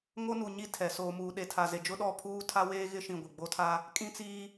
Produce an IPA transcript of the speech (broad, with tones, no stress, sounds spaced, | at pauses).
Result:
ŋ o˦ n u˨ ɲ i˦˨ tʰ ɛ˨ s oː˨ m uː˨ ɗ e˨ tʰ a˨ z e˨ d͡ʒ ʊ˦ ɗ ɔ˦˨ pʰ uː˦ tʰ a˦ w eː˦ ɣ ɪ˦ ʃ ĩ˨ ɡʷ ɪ˨ ɡ͡b o˦ tʰ a˦ | kʼ ĩ˦ t͡s iː˦